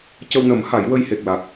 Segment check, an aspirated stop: absent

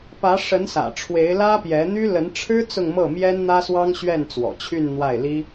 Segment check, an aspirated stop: present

